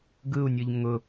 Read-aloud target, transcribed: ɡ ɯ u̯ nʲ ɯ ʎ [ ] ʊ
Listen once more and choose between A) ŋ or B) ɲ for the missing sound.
A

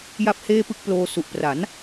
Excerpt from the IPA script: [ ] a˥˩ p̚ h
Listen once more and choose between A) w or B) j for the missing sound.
B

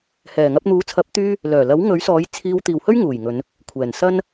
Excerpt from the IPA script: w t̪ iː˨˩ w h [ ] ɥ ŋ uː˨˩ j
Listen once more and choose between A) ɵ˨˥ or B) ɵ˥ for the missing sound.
B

